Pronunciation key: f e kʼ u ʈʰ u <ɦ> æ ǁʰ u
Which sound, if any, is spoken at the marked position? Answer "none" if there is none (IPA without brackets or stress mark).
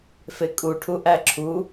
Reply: ʔ